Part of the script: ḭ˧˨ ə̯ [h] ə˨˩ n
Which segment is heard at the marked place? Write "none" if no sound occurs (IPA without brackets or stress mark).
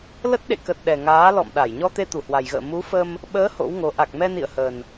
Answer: h